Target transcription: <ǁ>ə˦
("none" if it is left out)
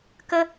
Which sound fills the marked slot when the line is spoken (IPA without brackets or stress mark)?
k